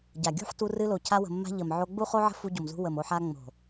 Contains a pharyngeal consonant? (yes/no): yes